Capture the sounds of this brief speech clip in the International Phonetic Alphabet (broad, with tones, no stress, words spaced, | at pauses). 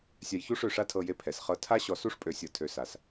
sʲa˧jçu˦ʂø˦˨ʂa˦ tʰɤ˧je˧ pʰɛ˨sχɤ˧ tʰa˦ɕɔ˧su˦ʂ pʼø˧sʲɤ˧tʰø˧ sa˧s